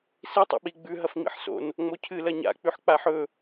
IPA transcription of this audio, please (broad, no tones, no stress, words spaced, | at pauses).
si tˤa̰ɓi ɡ͡bʉ ɦɐfŋ͡mḭħso̰n | ŋ͡mocʰɨ lɐɲa̰ k͡pʉħk͡paħɵ